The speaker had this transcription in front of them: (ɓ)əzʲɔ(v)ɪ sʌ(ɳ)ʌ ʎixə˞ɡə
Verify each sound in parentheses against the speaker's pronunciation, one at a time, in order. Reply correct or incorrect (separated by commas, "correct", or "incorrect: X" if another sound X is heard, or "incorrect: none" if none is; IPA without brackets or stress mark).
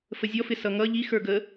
incorrect: f, incorrect: f, incorrect: ŋ